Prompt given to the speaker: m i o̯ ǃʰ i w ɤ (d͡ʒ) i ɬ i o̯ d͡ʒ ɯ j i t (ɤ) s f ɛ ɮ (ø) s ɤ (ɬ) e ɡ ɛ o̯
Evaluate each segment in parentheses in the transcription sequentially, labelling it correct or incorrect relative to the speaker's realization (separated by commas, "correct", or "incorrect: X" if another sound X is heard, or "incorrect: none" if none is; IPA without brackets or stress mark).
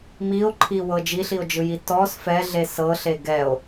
correct, incorrect: ɔ, incorrect: e, correct